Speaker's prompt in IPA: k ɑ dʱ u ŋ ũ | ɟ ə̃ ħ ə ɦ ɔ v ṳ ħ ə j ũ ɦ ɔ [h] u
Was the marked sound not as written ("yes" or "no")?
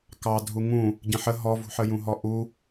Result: yes